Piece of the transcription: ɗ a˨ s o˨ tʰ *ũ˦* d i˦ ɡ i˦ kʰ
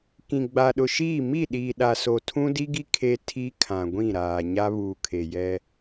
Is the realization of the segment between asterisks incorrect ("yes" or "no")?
no